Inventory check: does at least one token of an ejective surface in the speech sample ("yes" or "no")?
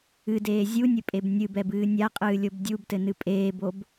yes